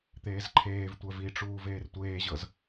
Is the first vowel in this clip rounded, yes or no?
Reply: no